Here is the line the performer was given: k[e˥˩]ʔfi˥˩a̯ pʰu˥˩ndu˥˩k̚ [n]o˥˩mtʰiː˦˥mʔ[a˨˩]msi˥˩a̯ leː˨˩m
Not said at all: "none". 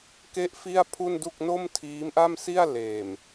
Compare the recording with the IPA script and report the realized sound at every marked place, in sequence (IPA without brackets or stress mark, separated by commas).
e˥˩, n, a˥˩